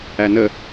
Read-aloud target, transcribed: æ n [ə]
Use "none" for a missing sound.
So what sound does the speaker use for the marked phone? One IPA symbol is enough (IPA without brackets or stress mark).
ə